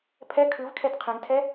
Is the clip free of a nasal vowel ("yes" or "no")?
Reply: no